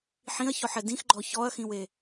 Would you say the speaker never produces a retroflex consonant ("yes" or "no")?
yes